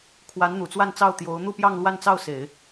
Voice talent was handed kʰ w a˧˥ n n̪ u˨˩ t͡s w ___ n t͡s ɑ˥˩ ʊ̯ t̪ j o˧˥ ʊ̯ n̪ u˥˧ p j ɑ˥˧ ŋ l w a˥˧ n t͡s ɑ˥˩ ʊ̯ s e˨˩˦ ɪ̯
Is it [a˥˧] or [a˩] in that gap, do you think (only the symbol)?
a˥˧